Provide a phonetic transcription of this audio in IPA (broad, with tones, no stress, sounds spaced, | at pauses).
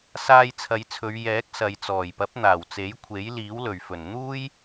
s aː˧ j t͡sʰ ɐ˨˧ j t͡sʰ ɵ˨˧ ɥ j ɛː˨˥ k̚ s ɐ˨ j t͡s ɔː˨˩ j p ɐ˨˥ p̚ n̪ aː˨˩ w t͡s e˨˥ j kʷʰ e˨˥ j l iː˨˥ w l ɵ˨˩ ɥ f ɵ˨˩ n n̪ uː˥ j